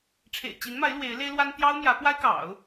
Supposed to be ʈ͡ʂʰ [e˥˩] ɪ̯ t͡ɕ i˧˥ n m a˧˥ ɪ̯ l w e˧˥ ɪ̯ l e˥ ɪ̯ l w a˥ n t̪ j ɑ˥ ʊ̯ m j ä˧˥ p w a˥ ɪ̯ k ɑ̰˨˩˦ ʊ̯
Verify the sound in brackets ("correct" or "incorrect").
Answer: incorrect